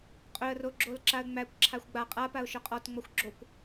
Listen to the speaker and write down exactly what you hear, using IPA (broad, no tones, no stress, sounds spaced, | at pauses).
qʼ ɵ ə̯ r o ɡ͡ǁ o l ǁ a ə̯ ŋ͡m æ kʷ ǁʰ a xʷ ɡ͡b a qʼ a p a ʊ̯ ʃ œ qʼ ɔ t ŋ͡m ɔ xʷ ɡ͡ǁ o kʷ